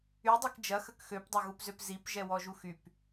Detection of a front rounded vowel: present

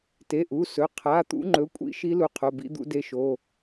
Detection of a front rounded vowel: absent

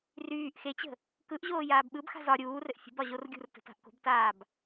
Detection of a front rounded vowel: present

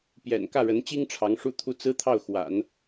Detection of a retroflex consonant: present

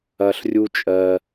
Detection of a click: absent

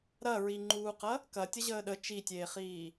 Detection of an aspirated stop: absent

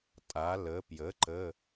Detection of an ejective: present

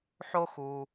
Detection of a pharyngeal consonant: present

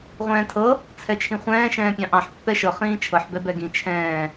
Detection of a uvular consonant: present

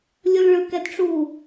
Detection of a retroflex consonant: present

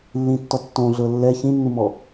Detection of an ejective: absent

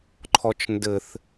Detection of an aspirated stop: present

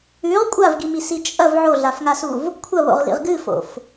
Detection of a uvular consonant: present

